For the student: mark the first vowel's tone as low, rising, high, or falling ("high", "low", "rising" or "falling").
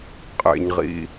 low